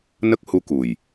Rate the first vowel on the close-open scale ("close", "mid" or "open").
mid